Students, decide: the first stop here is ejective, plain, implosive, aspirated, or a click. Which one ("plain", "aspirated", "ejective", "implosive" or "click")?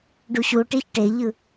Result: plain